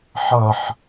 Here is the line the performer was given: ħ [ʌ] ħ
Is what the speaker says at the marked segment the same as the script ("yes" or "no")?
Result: yes